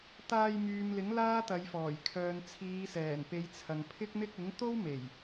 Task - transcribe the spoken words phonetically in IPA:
t̪aː˧jmyː˨mlɪ˨˥ŋ laː˥t̪ɐ˨˧jfɔː˨˩j kʰœː˨nt͡sʰiː˨˧sɛː˨˩npe˨˧j t͡sʰɐ˨ŋpʰɪ˥k̚n̪ɪ˥k̚ ɪ˨˥ŋt̪o˥wme˨˩j

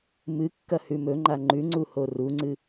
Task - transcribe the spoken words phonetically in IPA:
mɨkːɐhʉ mɵŋ͡ǃa ŋ͡ǃʉŋ͡ǀuho ruŋ͡ǀɨ

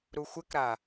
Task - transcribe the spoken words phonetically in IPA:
ɾuxʷɪkɾa

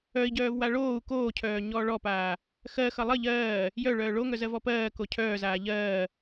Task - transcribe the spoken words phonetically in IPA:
œi̯ɟœːvwa ɭoːu̯ koːcʰœːɲɔː ɭɔpaː | xɜxʌ lˠə ʎɜː | jœɭœː ɭoŋœzɜvɔ pɜːko cʰœːzaː ʎɜː

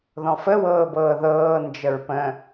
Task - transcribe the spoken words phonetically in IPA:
ðɔ̃fə wɤːbɤːðɤː nd͡ʒəɹpə̃

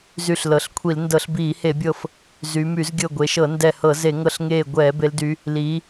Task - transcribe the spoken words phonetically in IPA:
zy˧˩ɬlɤ˩˧ɬkʷʰi˧˩˧l ndɤ˧˩˧ɬbiː˧˩˧he˧˩˧bʲɤ˧˩f | zy˩˧my˧˩˧z ɡʲɤ˧˩ ɡʷe˩˧ʃɤ˧˩˧ ndɛ˧˩hɤ˧˩˧ ze˧˩˧ŋɤ˧˩ɬŋeː˧˩ ɡʷɛː˧˩˧ be˩˧ldy˩˧ | liː˩˧

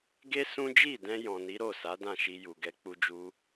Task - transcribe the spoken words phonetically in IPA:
ɡe˦ sũ˦ d͡ʒi˦˨dɛ̃˧ jɔ̃˨ni˨˦ɾo˦˨ sa˨˦dã˦˨ʃi˧ ju˨ɡɛ˧k͡pu˦d͡ʒu˦

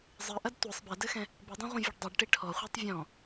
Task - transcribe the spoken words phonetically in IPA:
zˤɨʔɐd tʷɨsˤ bɛdɘxɛ̃ | bɨdˤɐ̃ʁʷɐ̃vʲɘɖ dˤɨɖʈi ʈʰɔχʷetˤ vʲɔ̃

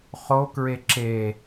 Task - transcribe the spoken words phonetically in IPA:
χokɹe ǁe

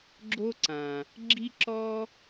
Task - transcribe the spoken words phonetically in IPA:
ɡ͡ǁo˧ǀã˩ | ɡ͡ǁi˧ǁɔ˧

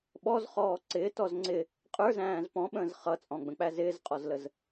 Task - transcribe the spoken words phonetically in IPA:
ɓɔzχɔː ǀɪːtɔz ŋ͡ǀɪ | qʼə˞zæ̃ːz pɔ̃ɓə̃ːz χʌt͡sʼɔ̃ɡ͡bə̃k͡pæ zɪːzqʼɔzləz

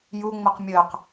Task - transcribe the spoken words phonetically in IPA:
juŋ͡məq mʲəq

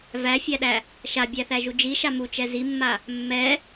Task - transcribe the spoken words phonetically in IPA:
væfʲæɗæ | ʃabʲæθæʒu d͡ʒiʃa mut͡ʃɛ zimːa | mːɛ

